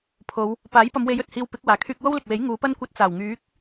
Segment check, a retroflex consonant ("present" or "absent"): absent